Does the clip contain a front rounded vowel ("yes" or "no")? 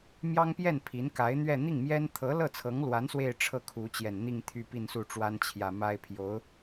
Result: yes